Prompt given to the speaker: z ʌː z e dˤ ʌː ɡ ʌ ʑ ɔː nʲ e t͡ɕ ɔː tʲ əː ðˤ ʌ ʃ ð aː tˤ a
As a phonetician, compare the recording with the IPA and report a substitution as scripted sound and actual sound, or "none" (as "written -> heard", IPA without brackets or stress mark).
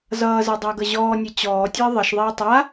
ð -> ðˤ